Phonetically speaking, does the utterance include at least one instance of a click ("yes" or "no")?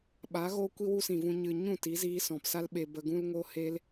no